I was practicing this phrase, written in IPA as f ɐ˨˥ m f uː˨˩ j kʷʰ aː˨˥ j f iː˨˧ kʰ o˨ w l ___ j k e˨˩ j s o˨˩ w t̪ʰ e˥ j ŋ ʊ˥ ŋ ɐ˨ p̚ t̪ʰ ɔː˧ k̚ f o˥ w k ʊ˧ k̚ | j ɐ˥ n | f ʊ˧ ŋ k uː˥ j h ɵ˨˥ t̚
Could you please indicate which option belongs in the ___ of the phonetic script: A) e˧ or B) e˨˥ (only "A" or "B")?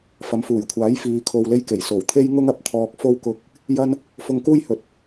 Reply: A